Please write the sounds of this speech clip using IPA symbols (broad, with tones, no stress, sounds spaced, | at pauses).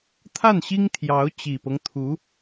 t̪ʰ a˥˩ n ɕ i˥ ŋ t̪ʰ j ɑ˧˥ ʊ̯ t͡ɕ i˨˩ p ɤ˦ ŋ t̪ʰ u˧˥